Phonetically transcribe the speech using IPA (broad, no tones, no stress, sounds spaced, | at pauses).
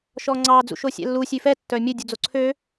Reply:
ʃ ɔ ŋ͡ǀ ɑ d͡z ṵ ʃ o sʲ ɛ̰ lː u sʲ ʉ f ɛ tː œ mʲ ɵ dʲ u d͡z o ǀʰ ø